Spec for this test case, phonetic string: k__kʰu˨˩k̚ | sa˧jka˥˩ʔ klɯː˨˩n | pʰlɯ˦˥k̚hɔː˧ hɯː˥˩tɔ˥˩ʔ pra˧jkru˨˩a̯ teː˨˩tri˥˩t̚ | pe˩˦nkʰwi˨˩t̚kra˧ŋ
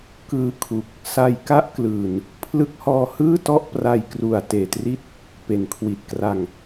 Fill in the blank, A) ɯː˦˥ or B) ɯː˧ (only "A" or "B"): B